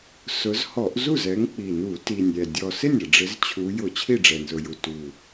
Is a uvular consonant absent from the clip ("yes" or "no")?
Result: yes